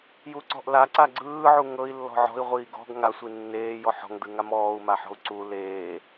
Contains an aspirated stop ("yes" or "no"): no